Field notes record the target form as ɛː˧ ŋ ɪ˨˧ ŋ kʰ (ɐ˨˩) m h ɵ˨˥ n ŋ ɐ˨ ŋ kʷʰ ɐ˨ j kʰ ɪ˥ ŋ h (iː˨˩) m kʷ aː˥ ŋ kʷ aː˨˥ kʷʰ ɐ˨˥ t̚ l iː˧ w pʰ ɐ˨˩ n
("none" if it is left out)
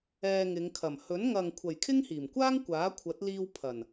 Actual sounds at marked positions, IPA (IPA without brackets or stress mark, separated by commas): ɐ˨˩, iː˨˩